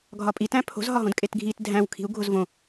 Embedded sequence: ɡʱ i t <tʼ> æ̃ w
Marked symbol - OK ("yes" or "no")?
no